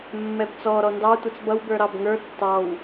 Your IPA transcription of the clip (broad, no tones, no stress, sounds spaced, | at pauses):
mː ɛ b t͡s ɔ ɾ ɔ n d ɑ tʷ ʌ t͡s b ʌ w b ə˞ ɾ ɑ b ŋ ə˞ tː ɑ w